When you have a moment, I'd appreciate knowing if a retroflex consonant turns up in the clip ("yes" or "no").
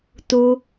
no